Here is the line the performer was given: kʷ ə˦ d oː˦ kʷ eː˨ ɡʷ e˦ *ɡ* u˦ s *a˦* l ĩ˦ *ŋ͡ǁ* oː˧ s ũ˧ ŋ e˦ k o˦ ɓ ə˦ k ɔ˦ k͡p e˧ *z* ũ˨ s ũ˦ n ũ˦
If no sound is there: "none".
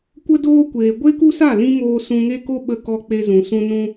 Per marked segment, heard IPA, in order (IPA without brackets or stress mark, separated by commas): k, a˦˨, ŋ, z